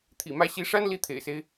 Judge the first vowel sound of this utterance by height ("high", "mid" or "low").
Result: high